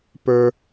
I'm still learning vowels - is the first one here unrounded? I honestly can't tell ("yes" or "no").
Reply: yes